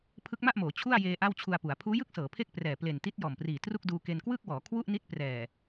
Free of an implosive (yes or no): yes